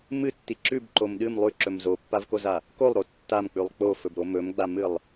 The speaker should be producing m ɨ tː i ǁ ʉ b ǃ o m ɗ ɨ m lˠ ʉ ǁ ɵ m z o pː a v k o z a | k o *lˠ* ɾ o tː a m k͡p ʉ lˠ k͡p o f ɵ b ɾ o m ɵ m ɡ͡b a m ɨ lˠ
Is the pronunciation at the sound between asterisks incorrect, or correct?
correct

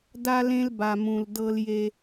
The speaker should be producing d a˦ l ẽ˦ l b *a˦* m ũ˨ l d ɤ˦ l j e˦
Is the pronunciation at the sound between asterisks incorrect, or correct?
incorrect: a˨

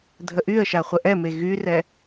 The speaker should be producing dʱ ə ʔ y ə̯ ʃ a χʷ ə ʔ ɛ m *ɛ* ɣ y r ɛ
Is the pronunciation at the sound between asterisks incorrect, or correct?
incorrect: e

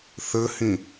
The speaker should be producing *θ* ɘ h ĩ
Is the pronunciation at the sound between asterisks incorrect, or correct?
correct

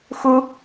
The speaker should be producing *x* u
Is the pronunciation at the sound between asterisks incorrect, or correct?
correct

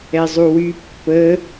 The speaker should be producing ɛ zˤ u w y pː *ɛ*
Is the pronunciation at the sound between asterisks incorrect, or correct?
incorrect: ə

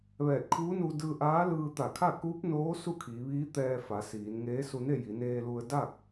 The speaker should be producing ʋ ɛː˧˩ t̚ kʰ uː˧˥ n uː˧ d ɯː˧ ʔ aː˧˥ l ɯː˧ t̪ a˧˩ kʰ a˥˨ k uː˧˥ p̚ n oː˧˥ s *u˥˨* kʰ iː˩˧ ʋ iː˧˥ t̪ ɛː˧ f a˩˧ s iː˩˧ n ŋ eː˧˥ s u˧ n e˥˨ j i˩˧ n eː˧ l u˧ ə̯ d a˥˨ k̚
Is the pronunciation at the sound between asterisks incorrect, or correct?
correct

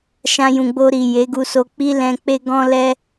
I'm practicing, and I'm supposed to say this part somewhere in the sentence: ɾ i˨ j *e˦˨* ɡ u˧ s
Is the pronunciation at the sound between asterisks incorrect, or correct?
incorrect: e˨˦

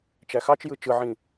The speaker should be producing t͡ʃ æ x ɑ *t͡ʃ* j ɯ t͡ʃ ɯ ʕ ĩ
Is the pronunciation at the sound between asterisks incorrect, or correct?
correct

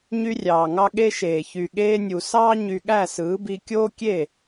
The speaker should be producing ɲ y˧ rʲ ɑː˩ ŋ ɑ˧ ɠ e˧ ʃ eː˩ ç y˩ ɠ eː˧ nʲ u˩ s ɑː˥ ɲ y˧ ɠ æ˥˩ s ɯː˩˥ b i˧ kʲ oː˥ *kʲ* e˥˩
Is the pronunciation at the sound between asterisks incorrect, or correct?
correct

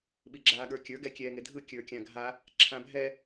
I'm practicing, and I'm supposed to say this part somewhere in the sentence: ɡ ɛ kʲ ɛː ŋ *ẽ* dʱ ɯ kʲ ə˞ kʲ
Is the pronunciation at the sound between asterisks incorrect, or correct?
incorrect: e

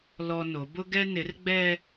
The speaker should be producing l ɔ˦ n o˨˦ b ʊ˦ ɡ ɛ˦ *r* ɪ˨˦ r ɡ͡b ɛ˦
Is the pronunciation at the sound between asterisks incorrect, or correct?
incorrect: n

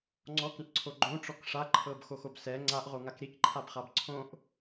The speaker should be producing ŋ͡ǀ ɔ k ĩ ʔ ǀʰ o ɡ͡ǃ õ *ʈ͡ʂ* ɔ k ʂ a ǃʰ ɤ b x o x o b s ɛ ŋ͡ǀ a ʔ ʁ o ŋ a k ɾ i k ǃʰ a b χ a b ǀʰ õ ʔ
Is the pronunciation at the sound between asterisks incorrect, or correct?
correct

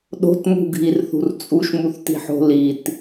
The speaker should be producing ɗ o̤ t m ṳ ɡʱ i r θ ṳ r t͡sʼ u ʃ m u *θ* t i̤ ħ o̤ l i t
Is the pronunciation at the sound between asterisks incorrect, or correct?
correct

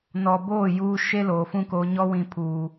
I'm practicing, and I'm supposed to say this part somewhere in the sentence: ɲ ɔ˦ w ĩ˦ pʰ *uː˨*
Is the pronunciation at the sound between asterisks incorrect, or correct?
incorrect: uː˦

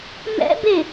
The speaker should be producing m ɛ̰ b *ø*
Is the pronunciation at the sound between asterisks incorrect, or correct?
incorrect: e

